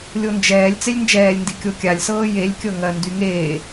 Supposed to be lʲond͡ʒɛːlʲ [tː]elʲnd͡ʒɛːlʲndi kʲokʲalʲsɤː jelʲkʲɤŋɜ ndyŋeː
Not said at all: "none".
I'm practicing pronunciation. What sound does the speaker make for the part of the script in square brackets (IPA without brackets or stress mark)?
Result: t͡s